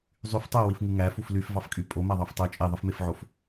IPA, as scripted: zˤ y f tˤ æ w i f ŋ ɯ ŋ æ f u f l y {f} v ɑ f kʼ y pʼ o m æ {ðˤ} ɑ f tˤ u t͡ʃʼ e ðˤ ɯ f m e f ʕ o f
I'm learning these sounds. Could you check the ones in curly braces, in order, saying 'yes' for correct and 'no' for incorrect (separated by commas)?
yes, yes